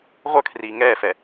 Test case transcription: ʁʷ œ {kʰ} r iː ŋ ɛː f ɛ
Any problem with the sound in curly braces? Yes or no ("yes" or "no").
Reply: no